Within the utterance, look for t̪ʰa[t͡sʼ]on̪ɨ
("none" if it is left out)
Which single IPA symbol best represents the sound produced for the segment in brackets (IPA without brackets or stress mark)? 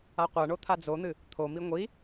d͡z